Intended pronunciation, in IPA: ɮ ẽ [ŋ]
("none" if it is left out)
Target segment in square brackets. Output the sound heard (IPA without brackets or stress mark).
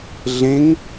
ŋ